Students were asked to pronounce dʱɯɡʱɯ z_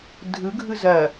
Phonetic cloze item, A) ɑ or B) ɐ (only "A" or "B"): B